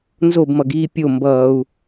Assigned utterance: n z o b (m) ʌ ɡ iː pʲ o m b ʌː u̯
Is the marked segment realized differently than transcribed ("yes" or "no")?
no